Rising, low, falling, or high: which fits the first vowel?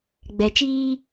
low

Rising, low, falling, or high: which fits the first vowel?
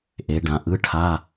rising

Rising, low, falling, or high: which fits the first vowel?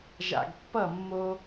low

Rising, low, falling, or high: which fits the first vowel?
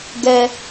high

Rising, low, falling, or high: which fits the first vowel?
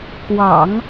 low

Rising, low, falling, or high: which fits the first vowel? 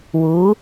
rising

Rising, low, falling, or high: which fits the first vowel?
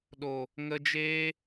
low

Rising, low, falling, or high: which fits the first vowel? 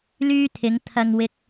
high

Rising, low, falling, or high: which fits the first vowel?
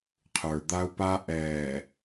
low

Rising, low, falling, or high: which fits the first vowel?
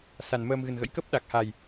low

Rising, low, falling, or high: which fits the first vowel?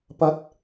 rising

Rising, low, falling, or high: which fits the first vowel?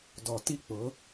low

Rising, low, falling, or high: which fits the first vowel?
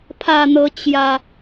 low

